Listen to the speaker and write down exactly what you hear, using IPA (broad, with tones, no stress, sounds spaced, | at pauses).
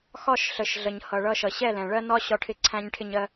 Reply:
x ɒ˦˨ ʃ ɬ ə˨ ʃ ɮ ə˨ ɲ h ʌ˨ ɭ ʌ˦ ʃ ʌ˨ ɕ ɛ˦˨ l ɛ̃˨ ɭ ɜ˦ n ɒ˦ ɕ ɒ˦ ʈʰ ɪ˦ ǀʰ æ̃˦ ɲ ʈʰ ɪ˦ ɲ ɜ˦